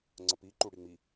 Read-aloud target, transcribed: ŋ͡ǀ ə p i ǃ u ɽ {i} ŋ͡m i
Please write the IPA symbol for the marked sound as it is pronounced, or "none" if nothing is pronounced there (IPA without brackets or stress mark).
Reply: i